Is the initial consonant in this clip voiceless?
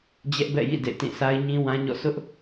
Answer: no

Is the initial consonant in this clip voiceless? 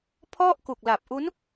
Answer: yes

